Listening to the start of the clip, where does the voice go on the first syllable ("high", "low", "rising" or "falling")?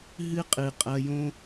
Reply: high